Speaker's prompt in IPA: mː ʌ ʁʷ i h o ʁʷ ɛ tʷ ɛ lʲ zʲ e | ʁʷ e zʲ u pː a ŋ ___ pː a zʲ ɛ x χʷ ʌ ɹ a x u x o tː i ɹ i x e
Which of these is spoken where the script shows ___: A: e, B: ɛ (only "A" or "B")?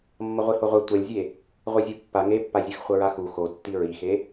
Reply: A